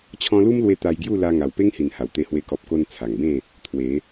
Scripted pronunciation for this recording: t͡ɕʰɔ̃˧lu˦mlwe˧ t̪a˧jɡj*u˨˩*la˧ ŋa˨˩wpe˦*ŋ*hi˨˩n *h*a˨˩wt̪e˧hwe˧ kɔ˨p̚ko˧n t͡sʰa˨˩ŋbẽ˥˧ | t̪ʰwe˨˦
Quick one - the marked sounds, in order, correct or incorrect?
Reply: incorrect, correct, correct

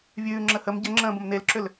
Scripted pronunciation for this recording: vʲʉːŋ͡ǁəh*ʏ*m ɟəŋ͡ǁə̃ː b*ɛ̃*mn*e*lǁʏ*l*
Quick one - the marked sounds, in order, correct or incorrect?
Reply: incorrect, incorrect, correct, correct

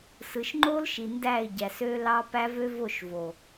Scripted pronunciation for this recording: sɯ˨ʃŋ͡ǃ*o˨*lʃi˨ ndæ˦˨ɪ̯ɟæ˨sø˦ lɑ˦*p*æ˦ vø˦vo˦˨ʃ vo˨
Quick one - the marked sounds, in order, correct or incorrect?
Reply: incorrect, correct

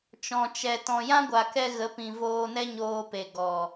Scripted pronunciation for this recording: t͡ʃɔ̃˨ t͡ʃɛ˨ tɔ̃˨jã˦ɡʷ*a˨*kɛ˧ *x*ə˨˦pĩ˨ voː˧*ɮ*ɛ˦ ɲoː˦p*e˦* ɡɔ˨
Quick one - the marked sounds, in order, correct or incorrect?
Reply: correct, incorrect, incorrect, incorrect

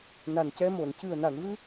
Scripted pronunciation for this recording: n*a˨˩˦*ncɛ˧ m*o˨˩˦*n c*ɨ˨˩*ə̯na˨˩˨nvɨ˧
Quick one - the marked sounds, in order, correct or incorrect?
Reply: incorrect, incorrect, correct

